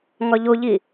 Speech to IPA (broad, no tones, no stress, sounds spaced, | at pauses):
ŋ ɒ ʎ o ʎ i